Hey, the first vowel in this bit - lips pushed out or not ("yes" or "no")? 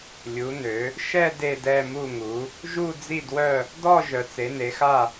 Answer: yes